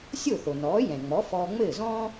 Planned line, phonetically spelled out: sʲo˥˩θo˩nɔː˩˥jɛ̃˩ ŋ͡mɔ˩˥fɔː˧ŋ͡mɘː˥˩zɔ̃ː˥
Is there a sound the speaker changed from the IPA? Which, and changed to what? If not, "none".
none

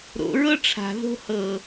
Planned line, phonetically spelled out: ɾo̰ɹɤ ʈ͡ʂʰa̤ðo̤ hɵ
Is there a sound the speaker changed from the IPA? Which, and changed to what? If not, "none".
ɵ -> ɤ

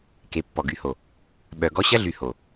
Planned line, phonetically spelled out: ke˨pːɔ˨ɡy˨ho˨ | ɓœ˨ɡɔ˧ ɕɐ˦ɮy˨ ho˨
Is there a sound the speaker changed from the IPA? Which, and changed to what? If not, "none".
none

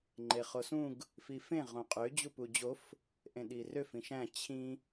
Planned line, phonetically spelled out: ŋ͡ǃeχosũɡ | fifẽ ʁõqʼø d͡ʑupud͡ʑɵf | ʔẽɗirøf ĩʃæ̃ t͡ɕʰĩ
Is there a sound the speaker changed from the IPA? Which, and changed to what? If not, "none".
ɵ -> o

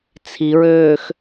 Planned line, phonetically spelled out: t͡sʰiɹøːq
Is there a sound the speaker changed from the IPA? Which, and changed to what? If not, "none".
q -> x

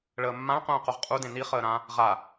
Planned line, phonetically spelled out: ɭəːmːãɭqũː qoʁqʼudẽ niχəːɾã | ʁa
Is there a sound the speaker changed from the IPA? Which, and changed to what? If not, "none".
none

